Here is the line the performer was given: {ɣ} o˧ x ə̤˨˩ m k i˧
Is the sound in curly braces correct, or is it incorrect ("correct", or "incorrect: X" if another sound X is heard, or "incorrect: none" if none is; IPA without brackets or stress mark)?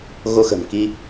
correct